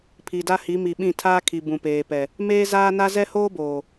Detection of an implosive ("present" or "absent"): present